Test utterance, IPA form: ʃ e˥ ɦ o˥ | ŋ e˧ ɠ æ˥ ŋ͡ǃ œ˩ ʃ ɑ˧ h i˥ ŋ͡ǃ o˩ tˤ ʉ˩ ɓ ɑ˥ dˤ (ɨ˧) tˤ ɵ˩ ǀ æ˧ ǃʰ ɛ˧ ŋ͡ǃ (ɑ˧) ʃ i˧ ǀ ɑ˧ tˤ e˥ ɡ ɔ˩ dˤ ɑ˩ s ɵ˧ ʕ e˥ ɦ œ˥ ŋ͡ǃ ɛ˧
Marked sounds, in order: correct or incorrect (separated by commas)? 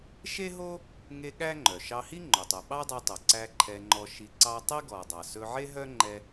incorrect, incorrect